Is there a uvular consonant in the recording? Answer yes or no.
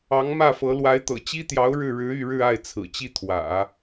no